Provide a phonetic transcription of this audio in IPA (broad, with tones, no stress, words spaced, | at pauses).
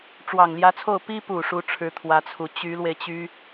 ʈ͡ʂwɑ˨˩ŋljä˧˥t͡sʰo˥˩ʊ̯ pi˥pu˨˩ ʂu˧˥ ʈ͡ʂʰɻ̩˧˥t̪ʰwä˧˥t͡sʰu˨˩ t͡ɕy˧˥lwe˧ɪ̯ t͡ɕy˥